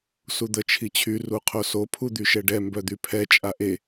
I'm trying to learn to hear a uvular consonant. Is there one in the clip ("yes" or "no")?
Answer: yes